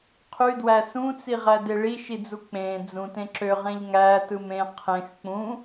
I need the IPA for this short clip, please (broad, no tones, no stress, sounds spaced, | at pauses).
qʰ y d w æ s ũ t͡s i ʁ æ d e ɭ i ʃ i d͡z u k͡p ẽ d͡z ũ t ẽ ǁ ø ʁ ẽ ʎ ŋ æ t ɯ m ẽ qʰ ẽ x k͡p ũ